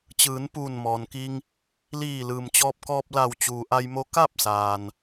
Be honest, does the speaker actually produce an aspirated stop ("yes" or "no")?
no